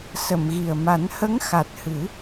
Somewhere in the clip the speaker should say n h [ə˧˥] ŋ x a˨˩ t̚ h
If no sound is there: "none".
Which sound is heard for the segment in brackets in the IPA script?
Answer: ə˧˥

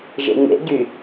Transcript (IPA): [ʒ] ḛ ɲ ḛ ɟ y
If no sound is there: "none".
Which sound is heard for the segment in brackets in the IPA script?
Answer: ʒ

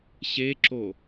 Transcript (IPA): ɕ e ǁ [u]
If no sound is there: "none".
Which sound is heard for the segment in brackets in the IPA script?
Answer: o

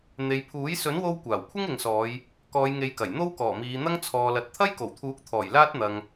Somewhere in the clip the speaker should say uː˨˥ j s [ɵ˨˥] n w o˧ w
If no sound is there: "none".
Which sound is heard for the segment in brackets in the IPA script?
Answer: ɵ˨˥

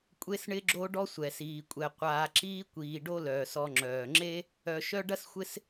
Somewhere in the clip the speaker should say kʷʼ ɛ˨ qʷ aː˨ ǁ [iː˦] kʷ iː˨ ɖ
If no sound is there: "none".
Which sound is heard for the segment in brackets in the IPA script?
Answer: iː˦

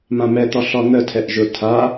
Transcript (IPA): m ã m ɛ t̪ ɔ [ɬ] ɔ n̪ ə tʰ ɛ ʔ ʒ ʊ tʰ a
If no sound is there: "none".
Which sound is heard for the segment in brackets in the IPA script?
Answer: ɬ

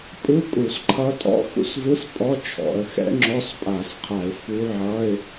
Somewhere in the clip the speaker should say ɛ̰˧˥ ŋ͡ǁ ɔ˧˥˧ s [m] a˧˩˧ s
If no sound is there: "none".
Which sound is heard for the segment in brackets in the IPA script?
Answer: pʼ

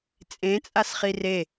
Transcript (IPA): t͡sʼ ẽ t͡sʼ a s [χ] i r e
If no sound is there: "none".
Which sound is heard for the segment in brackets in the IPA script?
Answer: χ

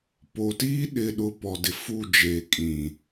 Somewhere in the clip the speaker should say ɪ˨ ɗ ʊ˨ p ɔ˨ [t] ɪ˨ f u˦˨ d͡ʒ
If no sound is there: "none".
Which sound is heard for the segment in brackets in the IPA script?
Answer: d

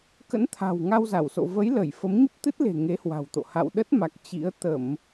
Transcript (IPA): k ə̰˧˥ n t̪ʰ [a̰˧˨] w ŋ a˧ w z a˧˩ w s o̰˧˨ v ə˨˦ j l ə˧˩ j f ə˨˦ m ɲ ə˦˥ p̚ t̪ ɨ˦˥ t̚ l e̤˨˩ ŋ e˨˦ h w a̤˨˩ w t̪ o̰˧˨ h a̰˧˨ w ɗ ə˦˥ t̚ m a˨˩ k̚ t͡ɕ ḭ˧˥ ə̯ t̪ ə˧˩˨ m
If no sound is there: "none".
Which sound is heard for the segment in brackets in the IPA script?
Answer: a̤˨˩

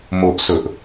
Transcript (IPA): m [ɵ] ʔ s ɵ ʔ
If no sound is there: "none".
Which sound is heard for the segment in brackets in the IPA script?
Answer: o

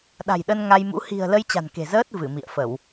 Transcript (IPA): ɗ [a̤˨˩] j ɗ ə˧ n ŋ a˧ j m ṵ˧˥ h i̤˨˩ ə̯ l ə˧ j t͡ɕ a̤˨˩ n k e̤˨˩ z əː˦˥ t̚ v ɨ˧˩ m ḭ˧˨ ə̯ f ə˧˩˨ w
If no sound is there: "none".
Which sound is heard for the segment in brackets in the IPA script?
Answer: a̤˨˩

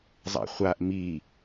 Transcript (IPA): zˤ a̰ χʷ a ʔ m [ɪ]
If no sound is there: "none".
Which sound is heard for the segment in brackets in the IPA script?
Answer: i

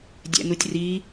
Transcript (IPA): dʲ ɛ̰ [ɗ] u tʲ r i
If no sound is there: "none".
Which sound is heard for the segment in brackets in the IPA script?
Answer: n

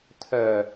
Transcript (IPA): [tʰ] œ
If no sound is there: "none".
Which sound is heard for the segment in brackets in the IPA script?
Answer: tʰ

